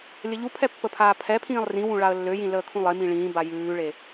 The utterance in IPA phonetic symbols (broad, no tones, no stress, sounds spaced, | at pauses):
lʲ ə ʎ u pʰ ɛ pː ə pʰ aː pʰ ɛ pʰ ĩː lˠ r ĩ w ũ ɭ a ə̯ lː ø j ĩ l əː kʰ ũ lˠ e m ĩ ɭ ĩː b a j ʉː ɭ e